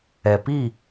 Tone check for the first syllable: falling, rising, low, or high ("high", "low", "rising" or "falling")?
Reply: low